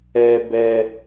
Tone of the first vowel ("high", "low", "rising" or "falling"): low